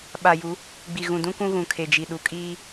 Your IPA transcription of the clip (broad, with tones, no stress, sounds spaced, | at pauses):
ɓ a˨ j u˨˦ | ɡ͡b i˨ ɣ ũ˨ d ũ˦ k ũ˦ ɣ ũ˨ kʰ e˨ d͡ʒ i˨ ɗ u˨ kʼ iː˦